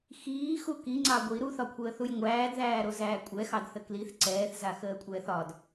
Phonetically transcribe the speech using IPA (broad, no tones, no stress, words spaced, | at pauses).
xiːxu kiŋ͡ǀɑ ɡʷi ɾuθɒkʷʰəːθuj ŋʷæːdðæːɾozæː kʷʼɛxɑdθə kliθ ǀɛːθzaxəːkʷʼɛːθ ɒd